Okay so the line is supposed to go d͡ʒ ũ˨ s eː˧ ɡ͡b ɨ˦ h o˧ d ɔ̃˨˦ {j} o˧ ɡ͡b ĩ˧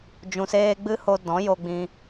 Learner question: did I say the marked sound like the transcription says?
yes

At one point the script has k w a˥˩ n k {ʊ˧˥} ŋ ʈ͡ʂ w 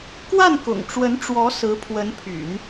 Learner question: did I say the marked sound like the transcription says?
no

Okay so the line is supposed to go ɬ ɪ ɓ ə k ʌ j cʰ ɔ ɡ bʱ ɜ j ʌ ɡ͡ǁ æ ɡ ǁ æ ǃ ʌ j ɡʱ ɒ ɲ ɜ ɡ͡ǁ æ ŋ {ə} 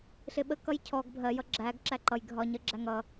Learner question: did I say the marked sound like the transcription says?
no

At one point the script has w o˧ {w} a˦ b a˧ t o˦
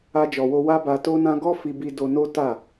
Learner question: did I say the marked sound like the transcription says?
yes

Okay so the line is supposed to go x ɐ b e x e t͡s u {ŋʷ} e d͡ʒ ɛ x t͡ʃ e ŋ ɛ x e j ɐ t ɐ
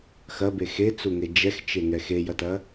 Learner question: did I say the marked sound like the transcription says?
no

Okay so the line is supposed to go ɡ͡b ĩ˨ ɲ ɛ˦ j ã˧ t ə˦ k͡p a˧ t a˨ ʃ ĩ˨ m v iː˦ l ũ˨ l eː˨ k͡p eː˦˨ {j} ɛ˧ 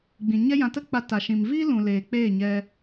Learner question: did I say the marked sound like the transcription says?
no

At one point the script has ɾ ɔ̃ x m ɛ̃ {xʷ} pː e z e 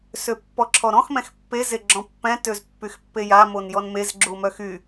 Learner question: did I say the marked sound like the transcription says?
no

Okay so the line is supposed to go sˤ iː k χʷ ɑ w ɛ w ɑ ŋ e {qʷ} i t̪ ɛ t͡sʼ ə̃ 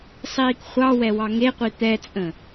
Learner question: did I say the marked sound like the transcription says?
yes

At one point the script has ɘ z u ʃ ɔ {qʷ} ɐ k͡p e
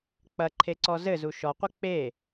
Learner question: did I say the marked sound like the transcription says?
yes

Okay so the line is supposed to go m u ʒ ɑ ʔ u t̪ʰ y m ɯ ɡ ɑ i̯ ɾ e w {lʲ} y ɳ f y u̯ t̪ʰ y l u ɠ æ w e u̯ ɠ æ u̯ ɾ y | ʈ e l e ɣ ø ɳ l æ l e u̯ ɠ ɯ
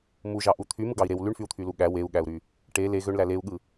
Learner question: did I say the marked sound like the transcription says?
no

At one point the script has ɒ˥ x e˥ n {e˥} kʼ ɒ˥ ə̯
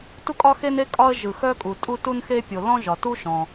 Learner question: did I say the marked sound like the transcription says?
yes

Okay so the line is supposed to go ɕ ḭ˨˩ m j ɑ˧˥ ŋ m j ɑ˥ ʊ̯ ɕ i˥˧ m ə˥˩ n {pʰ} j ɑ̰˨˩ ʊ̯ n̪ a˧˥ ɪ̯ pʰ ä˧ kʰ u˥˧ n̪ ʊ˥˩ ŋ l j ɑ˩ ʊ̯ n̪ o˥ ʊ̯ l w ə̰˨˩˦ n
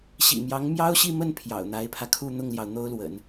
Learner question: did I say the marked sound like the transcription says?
yes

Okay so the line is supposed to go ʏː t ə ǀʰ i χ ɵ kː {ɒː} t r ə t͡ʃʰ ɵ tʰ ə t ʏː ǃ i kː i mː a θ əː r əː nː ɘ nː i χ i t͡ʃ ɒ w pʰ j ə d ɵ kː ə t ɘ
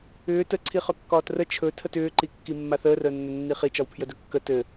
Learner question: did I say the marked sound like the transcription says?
yes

